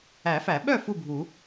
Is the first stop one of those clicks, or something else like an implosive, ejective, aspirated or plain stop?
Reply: implosive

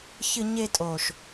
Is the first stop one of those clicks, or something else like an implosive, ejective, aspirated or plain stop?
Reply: ejective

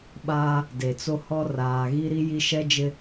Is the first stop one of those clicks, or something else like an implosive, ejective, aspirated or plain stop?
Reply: implosive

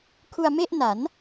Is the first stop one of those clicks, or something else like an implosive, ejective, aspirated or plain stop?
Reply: aspirated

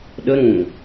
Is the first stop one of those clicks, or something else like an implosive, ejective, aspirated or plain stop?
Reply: implosive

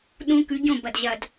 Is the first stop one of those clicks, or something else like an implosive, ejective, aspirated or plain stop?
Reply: implosive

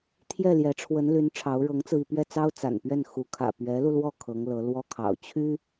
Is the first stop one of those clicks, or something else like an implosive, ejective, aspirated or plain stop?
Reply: aspirated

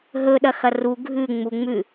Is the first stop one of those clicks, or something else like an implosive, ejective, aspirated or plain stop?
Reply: implosive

